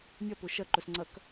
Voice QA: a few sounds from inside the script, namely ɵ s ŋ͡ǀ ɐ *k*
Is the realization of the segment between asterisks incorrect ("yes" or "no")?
no